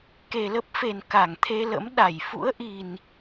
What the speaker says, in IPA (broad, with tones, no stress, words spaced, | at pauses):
ke˨˩lə˦˥p̚fe˨˩n ka˧˩ŋt̪ʰe˧lə̰˧˥mɗa˧˩j fṵ˧˥ə̯ʔi˨˩n